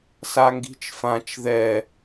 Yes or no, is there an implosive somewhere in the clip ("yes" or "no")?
no